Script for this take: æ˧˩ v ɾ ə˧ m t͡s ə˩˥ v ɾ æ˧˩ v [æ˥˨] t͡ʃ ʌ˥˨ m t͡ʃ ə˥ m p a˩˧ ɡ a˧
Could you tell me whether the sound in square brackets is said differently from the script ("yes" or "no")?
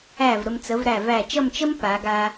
yes